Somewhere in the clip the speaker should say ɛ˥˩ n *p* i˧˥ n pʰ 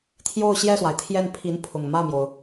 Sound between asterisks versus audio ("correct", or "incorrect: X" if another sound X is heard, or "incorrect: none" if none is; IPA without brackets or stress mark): incorrect: pʰ